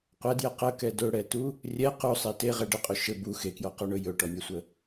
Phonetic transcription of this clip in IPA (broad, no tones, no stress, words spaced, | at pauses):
qʷɛdjɛ qəkɛ dɵɽɛtu | rʲɛ qusˤe teʁɛ ɖɘqʼɵ ʃɘ bu xekjɔqɔɳɵ jɵʈɔnʲɛsʷə